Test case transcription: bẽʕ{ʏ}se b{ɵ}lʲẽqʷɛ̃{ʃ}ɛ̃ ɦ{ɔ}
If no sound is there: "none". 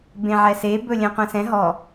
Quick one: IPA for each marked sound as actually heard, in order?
ɛ, ɵ, s, ɔ

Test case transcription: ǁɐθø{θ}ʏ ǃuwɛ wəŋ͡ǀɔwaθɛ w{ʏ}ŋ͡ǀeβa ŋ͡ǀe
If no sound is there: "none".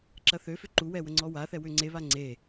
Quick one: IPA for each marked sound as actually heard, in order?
f, ʏ

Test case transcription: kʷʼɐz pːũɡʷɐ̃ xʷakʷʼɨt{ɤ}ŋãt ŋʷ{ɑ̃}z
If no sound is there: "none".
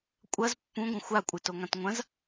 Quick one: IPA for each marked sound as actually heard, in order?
o, ɐ̃

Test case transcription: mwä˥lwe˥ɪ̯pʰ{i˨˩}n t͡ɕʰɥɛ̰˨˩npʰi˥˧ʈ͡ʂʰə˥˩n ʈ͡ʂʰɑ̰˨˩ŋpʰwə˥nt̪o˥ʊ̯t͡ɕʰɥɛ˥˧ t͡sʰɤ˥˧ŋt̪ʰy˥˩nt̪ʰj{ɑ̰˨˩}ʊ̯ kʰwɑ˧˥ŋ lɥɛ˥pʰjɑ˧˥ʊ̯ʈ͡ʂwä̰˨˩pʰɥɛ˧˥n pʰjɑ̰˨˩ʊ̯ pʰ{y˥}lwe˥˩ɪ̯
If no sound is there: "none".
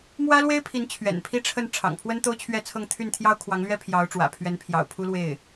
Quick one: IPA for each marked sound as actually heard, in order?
i˧˥, ɑ˥, u˥

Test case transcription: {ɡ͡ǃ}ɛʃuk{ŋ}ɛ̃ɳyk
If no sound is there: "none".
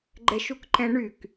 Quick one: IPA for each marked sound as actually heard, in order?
ɡ͡ǃ, ǃ

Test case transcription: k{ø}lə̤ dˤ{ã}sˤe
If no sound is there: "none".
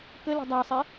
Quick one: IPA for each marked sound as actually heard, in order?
ə, a

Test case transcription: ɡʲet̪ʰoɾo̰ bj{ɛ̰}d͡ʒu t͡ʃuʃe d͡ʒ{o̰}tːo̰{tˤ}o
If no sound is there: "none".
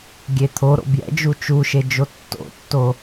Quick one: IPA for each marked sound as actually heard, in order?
ɛ̰, o, tː

